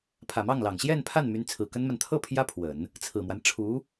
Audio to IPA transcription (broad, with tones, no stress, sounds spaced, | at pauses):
pʰ ä˨˩ m ɑ˥˩ ŋ l ɑ˨˩ ŋ ɕ j ɛ˥˧ n pʰ a˥˩ n m y˧˥ n t͡sʰ ɹ̩˨˩ k ə˥ n m a˨ n t̪ʰ ɤ˥˩ pʰ j ä˥ pʰ w ə˨˩˦ n | t͡sʰ ɹ̩˨˩ m w a˦ n ʈ͡ʂʰ u˧˥